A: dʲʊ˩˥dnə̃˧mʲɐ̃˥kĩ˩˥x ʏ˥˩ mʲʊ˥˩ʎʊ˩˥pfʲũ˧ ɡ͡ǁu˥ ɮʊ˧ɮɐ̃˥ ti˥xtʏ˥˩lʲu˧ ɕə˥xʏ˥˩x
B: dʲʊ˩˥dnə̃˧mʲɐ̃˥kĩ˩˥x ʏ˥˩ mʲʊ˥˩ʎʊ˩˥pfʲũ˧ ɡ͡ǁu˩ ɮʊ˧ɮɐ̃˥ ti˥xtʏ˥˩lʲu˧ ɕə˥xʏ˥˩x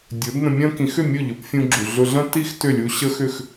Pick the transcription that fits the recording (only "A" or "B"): B